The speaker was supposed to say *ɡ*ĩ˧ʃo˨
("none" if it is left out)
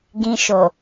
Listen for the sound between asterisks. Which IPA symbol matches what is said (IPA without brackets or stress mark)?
ɡ